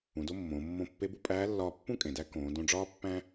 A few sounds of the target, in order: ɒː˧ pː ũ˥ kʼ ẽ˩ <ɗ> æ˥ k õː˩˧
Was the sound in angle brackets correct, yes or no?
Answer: no